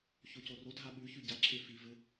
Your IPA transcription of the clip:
çocorodʱa ɓʉ çʉɟaǁʰe fivɘ

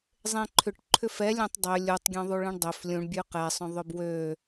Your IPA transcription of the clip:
zˤẽǃʰʏʈ ǃʰʏfɛlʲẽtˤ dˤø lʲutˤɡʲœ̃ ðˤuɭẽɳdˤøf lʲũɳ bʲʉqɛsˤœ̃ ðˤʏbwø

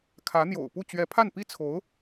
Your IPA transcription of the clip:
kʰä˧˥n̪jo̰˨˩ʊ̯pu˥˩ t͡ɕɥɛ˧˥pʰa˥˩npi˥ t͡sʰo˧˥ʊ̯

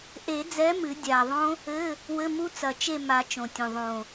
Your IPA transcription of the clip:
ʔe˨˩˦d͡zɛ˨˥ mɨ˨˩˦dʲa˨˩ðˤõ˦˥ | ɘ˧˥˧ | wɘ˧˥˧mu˦˥ t͡sɐ˨˩t͡ʃe˦˨ ma˨˩˦ t͡ʃõ˨˩tʲũ˨˩ ðˤõ˨˩

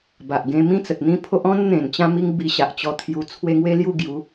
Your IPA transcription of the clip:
ba˨ʔɡẽ˧mĩ˦t͡sə˨t̚ n̪ĩ˦pʰo˦ʔ ɔ̃˦n n̪ẽ˨˩nt͡ɕã˧mi˧ŋ bi˧ɕa˨ʔt͡ɕɔ˧t̪ʰju˧ t͡sʰwe˦ ŋwe˦lju˥˧ɡju˨˦

